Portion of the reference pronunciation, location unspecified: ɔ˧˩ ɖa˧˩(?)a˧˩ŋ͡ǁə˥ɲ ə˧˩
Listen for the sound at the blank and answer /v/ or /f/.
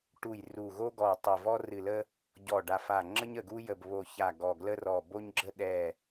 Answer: f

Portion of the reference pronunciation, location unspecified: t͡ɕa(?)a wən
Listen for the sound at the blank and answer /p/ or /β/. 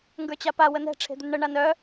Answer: p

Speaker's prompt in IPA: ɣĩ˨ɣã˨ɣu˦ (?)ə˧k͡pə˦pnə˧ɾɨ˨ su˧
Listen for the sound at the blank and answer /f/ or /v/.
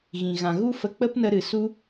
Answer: f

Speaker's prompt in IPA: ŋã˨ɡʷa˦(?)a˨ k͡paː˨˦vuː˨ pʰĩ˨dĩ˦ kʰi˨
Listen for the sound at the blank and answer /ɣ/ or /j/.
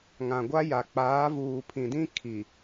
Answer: j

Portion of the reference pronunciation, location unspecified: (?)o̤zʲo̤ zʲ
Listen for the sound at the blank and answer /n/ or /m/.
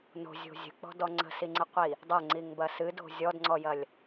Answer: n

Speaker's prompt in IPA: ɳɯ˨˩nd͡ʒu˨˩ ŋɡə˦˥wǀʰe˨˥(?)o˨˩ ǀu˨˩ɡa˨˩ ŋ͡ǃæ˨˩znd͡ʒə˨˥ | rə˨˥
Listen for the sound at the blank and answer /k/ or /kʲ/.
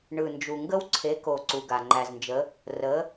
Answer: k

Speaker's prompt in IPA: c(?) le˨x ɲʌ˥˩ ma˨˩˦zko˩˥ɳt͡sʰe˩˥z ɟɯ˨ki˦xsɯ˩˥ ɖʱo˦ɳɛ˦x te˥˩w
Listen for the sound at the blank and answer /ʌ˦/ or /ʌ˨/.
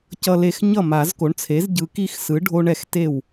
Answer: ʌ˨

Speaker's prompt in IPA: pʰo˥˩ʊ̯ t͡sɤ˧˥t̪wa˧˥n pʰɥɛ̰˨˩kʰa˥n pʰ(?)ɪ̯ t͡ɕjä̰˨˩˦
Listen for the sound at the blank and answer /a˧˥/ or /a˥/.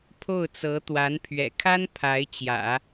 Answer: a˧˥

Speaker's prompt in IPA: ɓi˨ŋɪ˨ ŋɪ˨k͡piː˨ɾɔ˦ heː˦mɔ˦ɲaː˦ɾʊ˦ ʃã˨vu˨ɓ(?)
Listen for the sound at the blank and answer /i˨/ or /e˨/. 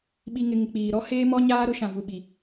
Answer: i˨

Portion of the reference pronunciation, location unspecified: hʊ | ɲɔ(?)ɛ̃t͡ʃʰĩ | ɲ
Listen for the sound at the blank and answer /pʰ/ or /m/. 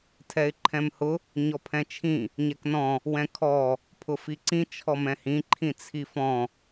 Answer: pʰ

